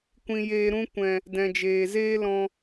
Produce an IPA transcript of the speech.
kʷ ĩ˧ j eː˧ ɾ ũ˦ kʷ ɛ̃˨ | d ɛ̃˨ d͡ʒ eː˨ z eː˦ l ɔ̃˧

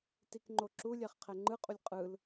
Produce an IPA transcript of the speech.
t i k ŋ͡ǃ o ǁ u lʲ ɛ χ qʰ ɛ ŋ͡ǃ ɯ qʼ u lʲ qʼ ɯ l

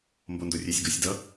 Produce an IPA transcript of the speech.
m b o n d o rʲ e sʲ ɡ o sʲ d ʌ

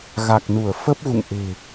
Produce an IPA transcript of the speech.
ɣ a˨˩ k̚ n u˧˩ ə̯ f ə˦˥ p̚ ɣ ṵ˧˨ ŋ ʔ e̤˨˩

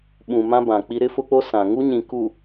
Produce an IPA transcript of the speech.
ɓ ũ˨ m ã˦ b ã˨ k͡p i˦ ɾ ɪ˦ f ʊ˦ k͡p o˦ s ã˨ ŋ u˦ ɲ ĩ˨ k u˨

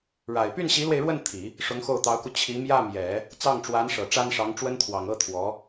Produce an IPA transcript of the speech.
ɻ a˨˩ ɪ̯ p y˥˩ n ɕ i˧˥ l w e˧ ɪ̯ ɻ w ə˥˩ n t̪ʰ i˨˩˦ | ʂ ʊ˧˥ ŋ x o˥˩ ʊ̯ t̪ ɑ˧˥ ʊ̯ k u˧ t͡ɕʰ i˧˥ m j ä˥˩ m j ɛ˨˩˦ | t͡s ɑ˥˩ ŋ ʈ͡ʂ w a˧˥ n ʂ ɤ˨˩ ʈ͡ʂ a˥ n ʂ ɑ˧˥ ŋ ʈ͡ʂ w ə˥ n t̪ʰ w ɑ˨˩ ŋ ɤ˥ t̪ʰ w ɔ˧˥

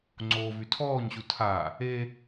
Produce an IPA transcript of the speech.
ŋ͡ǀ oː v y tʰ ɔː ɲ ɕ u tʰ a | e

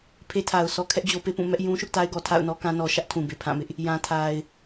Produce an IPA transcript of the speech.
pʰ e˦ tʰ a˨ ʊ̯ s ɔ˦ kʰ ɛ˦ ʔ d͡ʑ o˦ p e˦ p ũ˦˨ m ɛ˦ ʔ j ũ˦ ʃ ʊ˦ ʔ t a˦ ɪ̯ ɡ ɔ˨ tʰ a̰˦˨ ʊ̯ n ɔ˦ k ã˦ n ɔ˦ ʃ ä˦ ʔ tʰ ũ˨ b e˨ pʰ ã˦˨ m ɪ˦ ʔ | j ã˨ tʰ a˨ ɪ̯

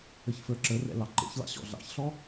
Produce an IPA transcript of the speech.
ə ç f ə˞ ǁ ə r ɛ̰ l ɑ ǃ ḛ ç l ɑ̰ ɕ ɔ̰ ɮ ɑ̰ ç ɬ ɔ

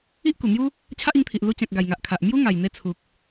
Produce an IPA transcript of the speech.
i˦ ʔ k u˨˩ n̪ j u˦ | t͡ɕʰ a˦ ʔ i˧ ŋ t̪ʰ i˨ ʔ l u˧ t͡ɕ ã˨ k̚ ɡ a˨˩ j ŋ a˨ ʔ kʰ a˨ ʔ m j u˦ ŋ a˨˩ j n̪ e˧ t͡sʰ u˨ k̚

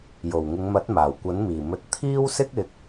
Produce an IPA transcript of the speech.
j o˨˩ w ŋ ɪ˨˧ ŋ m ɐ˨˥ t̚ m aː˨˩ w kʷ ɐ˨˥ n m iː˨˩ m ɵ˨˥ t̚ t̪ʰ iː˥ w s ɪ˥ k̚ ɪ˨˥ k̚

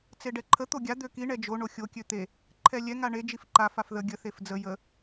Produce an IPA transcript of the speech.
t͡s e ɖ ɛ ǃʰ ə t̪ o ɡʲ a d̪ ø k i ɳ ɛ d͡ʒ o ɳ o xʲ o kʲ ø t̪ e | ǃʰ ɛ lʲ ɛ ŋ a ɳ e d͡ʒ i f ǃ a f a f ð ə ɡʲ ə θ e f d͡z ə j ə

